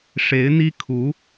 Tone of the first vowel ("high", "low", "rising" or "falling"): rising